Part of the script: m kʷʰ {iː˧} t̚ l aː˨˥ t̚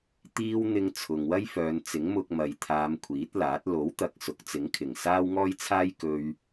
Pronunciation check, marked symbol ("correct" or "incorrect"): incorrect